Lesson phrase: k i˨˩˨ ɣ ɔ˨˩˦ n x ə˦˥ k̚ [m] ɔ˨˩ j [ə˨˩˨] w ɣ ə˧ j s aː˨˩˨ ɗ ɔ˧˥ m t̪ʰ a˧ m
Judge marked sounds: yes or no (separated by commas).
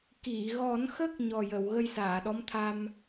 no, yes